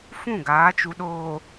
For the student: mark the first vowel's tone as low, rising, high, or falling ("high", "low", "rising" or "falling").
falling